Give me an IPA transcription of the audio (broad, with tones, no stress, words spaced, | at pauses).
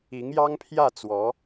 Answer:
i˧˥ŋjɑ˥ŋpʰjä˥˩t͡swɔ˧˥